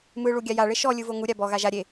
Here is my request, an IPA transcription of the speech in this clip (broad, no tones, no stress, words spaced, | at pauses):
mɯ ɭuɡʲaja ɭeʃɔ lʲɯvoŋu ɾʲabɔ ɣaʒa ɾʲe